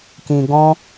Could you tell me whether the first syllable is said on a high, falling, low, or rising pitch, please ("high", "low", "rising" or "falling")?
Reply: low